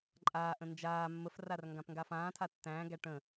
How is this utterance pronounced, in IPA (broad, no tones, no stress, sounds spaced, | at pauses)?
ǃʼ aː ʔ ə̃ n d͡ʒ aː mː ə f r a r ŋ ɡ ã p ŋ ɡ a f ãː tʰ a tː æ̃ː ɡ æ ʈ ə̃